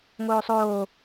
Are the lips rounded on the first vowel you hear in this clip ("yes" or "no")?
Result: yes